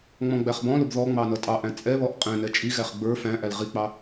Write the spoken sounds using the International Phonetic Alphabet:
ŋ͡mɔ̃ɡ͡bæχbɔ̃lʊb ðɔ ŋ͡mɑnʌtʼɑʔæ̃ t͡sʼɛβɔʔ qʼɛ̃ nɛt͡ʃʼiɣæχ ɡ͡bə˞ fæ̃ʔæl ʁik͡pɑ

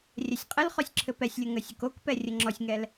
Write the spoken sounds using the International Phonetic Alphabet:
rʲɛsʲqʼɘlχɔsʲ ǁʰɘpɛsʲlʲo ŋəsʲʊkokpɛ rʲəŋ͡ǁɔsʲŋɛl

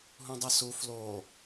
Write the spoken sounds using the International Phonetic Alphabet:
ɦũdˤɯsu flo

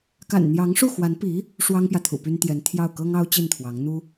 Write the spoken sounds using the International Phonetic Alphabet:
ka̰˨˩nn̪jɑ˧˥ŋʂu˥˩xwa˧˥n pi˧˥ | ʂwɑ˥ŋpjä˨ t̪ʰṵ˨˩py˥nt̪jɛ˧˥n t̪ʰjɑ˥˩ʊ̯ kɤ˥ŋɑ˥ʊ̯ t͡ɕi˥˩nt̪ʰwɑ˧˥ŋ n̪u˥

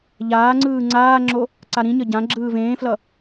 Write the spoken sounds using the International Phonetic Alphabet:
ʎaːŋ͡ǀɯː ŋ͡ǀaːŋ͡ǁo | ǀaɾĩɲʌ ɟã ɡ͡ǁɯːvẽːflʌ

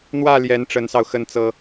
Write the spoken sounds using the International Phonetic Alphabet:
n̪wä˥˩ ljɛ˧˥nʈ͡ʂə˧˥nsɑ˧ʊ̯ xə˥˩nt͡sɤ˥

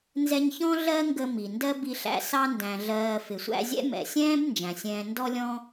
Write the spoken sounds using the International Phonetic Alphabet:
nzɛ˧ɲçɔ̃˦ ɮɜ˦ŋɡə˧ mi˨ndɜ˦bi˧ɬæ̰˧ sɑ˧ndæ̃˨ ɮɜː˨ fɪ˨sʷæ̰˧zʲɛ̰˦ mɛ̰˨sʲɛ̃ː˦b nd͡ʒæ̃˨sʲɛ̃ː˧ ndɔ˧lʲɔ̃˧

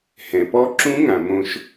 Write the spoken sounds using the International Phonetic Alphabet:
hɛ̃˩pɔ˦˥ǁũ˦˥ŋã˩ mõ˦˥ʃ

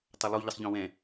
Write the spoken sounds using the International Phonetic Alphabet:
tˤʌlˠu ʎəsˤʎɔ̃wɛ̃

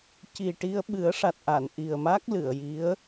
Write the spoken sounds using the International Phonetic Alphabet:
ci˨˩ʈi˧ə̯ ɓɨ˨˩˦ə̯ʂa˨˩t̚ʔa˨˩˨n ʔi˨˩ə̯ma˦˥k̚lɨ˨˩˨ə̯ji˧˥ə̯

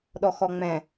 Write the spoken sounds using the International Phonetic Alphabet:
ɗɔxɔŋ͡mɛ̃

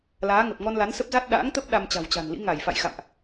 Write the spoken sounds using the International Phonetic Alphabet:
laː˨˦ŋə˨˩p̚ ŋɔ˧nla˨˦nsə˦˥p̚za˦˥t̚ ɗa̰ː˧˥ŋt̪ə˦˥p̚ ɗa˧mt͡ɕa̤˨˩wt͡ɕa̤˨˩nlḭ˧˥ ŋa˧˩jfa̰˧˨jxa̰˧˨mʔ

